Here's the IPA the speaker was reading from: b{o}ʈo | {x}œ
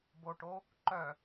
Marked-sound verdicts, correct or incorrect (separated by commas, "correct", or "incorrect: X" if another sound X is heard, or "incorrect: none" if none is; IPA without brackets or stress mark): correct, incorrect: ǃ